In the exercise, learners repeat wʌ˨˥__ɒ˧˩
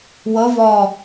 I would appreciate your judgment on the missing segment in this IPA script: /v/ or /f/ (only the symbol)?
v